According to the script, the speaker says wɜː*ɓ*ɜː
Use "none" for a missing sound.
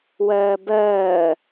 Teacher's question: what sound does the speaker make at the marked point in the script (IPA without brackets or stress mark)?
b